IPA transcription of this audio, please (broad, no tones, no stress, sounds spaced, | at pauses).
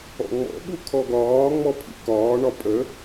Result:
ɔ̰ ŋ͡m ɔ̰ ɓ u kʰ ɔ ɡ ɒː ŋ͡m ɔ pʰ ḭ k ɒː ɳ ɒ pʼ ə